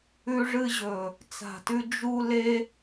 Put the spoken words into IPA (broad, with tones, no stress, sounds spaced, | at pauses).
ʉ˧ ʐ ɨ˧ ʑ ɵ˨ | t͡s a̤˨ t ʉ˧ d͡ʒ u˧ l e˦